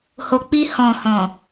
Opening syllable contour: low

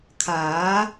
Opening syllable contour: rising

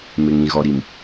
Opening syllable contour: low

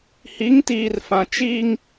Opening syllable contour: rising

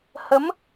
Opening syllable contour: rising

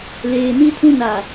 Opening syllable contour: low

